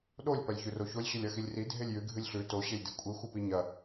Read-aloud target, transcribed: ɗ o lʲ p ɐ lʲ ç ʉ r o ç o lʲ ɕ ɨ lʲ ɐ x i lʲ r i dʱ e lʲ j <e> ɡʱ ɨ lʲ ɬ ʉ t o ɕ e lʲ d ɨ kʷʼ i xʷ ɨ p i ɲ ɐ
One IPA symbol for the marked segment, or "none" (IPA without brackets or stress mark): ɨ